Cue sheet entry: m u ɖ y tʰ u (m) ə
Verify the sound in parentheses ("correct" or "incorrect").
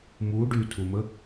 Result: correct